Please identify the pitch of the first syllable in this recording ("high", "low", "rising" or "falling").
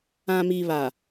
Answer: low